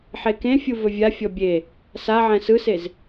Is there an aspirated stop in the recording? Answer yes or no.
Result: no